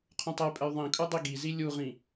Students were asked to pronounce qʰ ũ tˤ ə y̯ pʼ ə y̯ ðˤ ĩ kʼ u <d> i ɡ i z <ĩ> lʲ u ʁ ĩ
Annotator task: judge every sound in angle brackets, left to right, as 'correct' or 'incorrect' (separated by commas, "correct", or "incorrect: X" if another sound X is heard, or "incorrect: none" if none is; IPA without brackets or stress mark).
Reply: incorrect: dˤ, incorrect: i